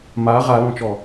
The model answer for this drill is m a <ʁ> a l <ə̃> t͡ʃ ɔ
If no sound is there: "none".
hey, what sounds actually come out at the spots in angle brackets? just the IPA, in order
ʁ, ɔ̃

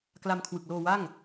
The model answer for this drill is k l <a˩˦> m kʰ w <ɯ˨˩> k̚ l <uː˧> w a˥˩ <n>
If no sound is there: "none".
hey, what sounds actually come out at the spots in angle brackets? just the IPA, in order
a˧, ɯ˨˩, oː˧, ŋ

